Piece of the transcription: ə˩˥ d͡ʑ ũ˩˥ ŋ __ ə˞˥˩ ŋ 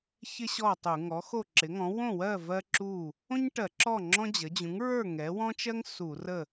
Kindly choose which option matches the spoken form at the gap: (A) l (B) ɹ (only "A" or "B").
B